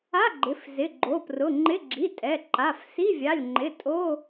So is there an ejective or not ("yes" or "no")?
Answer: yes